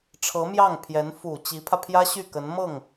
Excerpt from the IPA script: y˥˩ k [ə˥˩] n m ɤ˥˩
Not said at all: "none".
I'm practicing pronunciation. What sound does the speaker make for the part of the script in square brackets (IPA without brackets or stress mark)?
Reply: ə˧˥